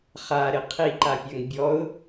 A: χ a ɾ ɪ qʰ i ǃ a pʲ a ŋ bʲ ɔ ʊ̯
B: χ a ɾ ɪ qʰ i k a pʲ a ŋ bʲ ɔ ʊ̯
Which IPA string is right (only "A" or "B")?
A